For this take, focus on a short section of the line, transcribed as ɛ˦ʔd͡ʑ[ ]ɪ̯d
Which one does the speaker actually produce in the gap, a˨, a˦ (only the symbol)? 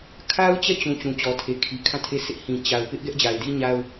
a˨